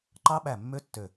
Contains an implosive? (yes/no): yes